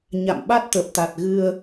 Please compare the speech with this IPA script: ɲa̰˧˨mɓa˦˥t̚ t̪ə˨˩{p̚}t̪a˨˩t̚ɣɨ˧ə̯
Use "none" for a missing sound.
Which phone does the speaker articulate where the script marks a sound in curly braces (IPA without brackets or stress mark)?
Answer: p̚